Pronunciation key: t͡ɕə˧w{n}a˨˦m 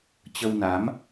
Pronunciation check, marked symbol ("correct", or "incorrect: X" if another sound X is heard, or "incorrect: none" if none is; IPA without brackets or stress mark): correct